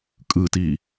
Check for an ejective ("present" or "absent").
present